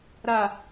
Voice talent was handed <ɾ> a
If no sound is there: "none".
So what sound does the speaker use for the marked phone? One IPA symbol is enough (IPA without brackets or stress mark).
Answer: ɾ